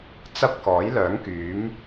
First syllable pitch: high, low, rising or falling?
high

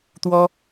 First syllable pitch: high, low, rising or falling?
high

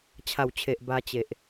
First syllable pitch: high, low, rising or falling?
low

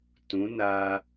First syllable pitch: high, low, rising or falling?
rising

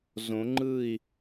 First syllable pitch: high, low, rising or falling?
rising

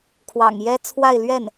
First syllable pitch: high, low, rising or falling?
low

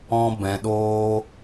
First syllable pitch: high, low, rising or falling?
high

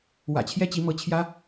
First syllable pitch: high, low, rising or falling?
low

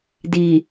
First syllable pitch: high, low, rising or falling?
low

